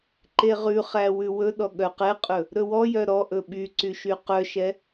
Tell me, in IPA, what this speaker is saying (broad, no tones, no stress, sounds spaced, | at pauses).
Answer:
ǃ e ʁ ʉ χ æ w ʉ w ɵ ɗ ɔ ɠ œ q ɛ qʼ ɵ | ɾ ɵ w ɔ j œ ɾ ɔ ʔ ɵ ɓ y ǀ y ʃ y q œ ʃ ɛ